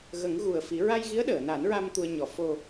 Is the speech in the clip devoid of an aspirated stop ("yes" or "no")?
yes